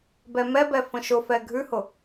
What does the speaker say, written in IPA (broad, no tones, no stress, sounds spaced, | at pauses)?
b ɛ m ɛ b ɛ f ə̃ ʃ ʊ f ɛ ɡʱ ʉ h ʊ